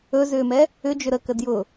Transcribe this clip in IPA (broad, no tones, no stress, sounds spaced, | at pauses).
ɵ z ʏː m ɛ | ʏ d͡ʒ ʏ ɾ ə k ə d j ʊ